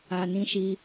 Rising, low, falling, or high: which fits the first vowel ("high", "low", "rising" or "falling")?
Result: low